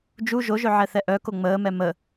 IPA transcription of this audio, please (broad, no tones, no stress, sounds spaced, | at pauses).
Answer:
d͡ʒ u ʒ o ʒ ø ʕ ɛ θ ɛ ʔ œ k o ŋ͡m əː m ɛ m ə